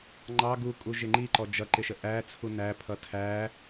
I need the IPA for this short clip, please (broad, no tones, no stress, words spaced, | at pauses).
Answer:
ŋ͡ǃɑ ɡukʼu ʒɪŋ͡ǃiǃɔ d͡ʒʌǃɪʃə ʔæt͡sʰu næ pʰʌtʰæ